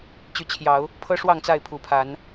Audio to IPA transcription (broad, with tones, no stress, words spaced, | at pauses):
t͡ɕy˨˦t͡ɕʰjɑ˨˦ʊ̯ | pʰɤ˦ʂwɑ˥˨ŋ t͡sa˥˨ɪ̯ pʰu˨˩pʰa˨˦n